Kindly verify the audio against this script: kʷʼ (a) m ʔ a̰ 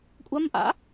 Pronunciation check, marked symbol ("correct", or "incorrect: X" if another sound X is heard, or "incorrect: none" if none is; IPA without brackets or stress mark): correct